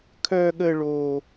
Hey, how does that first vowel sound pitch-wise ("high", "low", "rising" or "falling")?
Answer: high